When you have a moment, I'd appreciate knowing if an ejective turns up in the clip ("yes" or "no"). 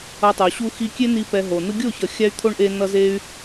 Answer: no